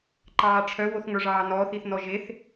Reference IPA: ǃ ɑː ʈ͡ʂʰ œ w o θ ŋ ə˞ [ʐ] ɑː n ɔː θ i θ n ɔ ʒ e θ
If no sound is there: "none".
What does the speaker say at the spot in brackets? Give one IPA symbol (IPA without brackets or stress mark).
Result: ʐ